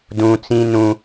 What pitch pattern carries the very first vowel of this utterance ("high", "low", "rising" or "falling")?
high